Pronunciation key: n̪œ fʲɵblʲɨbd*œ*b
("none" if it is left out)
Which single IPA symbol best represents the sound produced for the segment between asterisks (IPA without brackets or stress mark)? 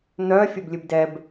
ɛ